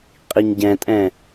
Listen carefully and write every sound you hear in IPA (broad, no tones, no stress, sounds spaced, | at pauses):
qʼ i ɲ ɟ ɛ̃ tʼ ɛ̃